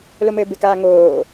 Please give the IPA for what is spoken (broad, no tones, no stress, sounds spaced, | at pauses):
l o m ɘː b ɪ k aː ŋ oː